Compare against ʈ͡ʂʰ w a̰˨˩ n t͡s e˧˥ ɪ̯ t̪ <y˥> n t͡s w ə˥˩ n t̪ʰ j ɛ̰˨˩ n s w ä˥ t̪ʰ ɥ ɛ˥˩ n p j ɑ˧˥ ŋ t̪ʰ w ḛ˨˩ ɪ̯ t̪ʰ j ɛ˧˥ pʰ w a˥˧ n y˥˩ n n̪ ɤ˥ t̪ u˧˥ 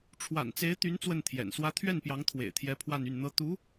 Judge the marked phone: incorrect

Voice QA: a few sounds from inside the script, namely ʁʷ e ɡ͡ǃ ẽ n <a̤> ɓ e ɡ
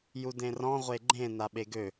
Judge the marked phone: incorrect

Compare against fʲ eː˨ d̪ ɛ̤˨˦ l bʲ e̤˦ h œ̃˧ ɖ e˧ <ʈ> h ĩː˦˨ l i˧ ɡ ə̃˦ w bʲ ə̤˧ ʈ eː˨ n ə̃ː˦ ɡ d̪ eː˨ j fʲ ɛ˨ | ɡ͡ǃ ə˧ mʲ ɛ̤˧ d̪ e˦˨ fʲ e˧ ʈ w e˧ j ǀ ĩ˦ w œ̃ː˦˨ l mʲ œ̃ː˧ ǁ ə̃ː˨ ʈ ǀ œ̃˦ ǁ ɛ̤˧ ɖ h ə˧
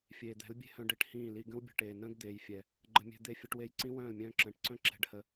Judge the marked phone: correct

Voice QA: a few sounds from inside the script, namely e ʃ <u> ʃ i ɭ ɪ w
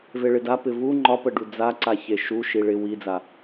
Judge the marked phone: correct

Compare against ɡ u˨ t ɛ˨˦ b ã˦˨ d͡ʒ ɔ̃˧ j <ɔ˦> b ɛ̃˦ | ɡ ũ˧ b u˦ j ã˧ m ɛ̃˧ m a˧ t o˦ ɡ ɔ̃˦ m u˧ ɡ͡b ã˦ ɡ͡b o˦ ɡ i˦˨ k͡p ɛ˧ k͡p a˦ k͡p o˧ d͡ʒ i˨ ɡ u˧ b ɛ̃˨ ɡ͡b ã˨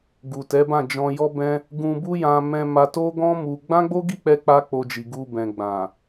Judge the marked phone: correct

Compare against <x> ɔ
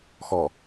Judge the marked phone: correct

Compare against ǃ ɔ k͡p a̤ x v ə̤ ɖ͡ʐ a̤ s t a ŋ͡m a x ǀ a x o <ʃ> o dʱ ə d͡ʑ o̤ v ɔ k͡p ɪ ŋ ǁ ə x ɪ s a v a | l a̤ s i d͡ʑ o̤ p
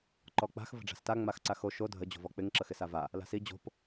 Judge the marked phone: correct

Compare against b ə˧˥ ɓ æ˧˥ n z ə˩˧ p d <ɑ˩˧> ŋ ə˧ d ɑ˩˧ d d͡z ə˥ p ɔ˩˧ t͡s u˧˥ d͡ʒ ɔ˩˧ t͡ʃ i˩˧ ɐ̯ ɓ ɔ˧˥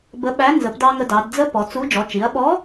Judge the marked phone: incorrect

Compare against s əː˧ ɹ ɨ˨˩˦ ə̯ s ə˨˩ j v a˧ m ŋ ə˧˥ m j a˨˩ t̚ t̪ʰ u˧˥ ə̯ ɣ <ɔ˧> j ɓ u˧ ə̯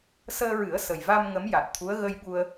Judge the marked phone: incorrect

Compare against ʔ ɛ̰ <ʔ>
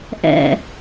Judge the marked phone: incorrect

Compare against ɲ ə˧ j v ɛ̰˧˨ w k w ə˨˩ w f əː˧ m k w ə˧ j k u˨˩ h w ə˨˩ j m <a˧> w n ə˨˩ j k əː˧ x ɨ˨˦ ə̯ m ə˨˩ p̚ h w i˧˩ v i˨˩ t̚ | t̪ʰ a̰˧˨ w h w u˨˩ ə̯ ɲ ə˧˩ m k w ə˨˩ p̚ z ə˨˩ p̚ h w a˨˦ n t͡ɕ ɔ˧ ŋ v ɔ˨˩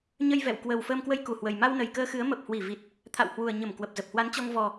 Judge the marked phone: correct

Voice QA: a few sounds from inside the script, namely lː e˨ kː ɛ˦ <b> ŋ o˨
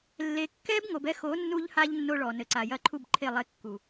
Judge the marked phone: correct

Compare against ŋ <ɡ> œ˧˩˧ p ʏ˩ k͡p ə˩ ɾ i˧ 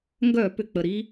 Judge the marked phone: correct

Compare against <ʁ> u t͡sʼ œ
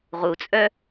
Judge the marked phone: correct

